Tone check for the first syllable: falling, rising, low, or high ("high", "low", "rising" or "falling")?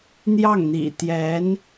falling